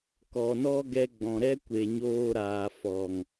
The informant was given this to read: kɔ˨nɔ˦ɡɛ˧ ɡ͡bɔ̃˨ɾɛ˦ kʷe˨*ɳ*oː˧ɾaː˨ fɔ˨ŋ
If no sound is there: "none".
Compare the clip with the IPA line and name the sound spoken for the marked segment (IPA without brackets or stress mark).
ɲ